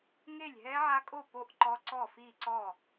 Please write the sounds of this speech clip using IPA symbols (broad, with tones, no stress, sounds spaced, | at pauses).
ŋ e˥˩ lʲ ɦ ɛ˦˥ ʕ a˦˥ kʼ o˥˩ p o˥˩ ʔ ǃ ɔ˦˥ ǀ ɔ˥˩ f i˥˩ ǀ ɔ˥˩